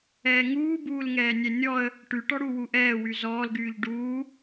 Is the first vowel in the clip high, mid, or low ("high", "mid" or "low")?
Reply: mid